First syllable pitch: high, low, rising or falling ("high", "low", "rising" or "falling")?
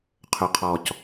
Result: low